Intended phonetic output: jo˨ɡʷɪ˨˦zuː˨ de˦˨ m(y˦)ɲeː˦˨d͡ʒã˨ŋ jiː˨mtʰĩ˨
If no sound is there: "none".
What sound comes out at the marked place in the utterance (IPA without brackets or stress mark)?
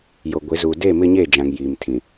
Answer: ɪ˦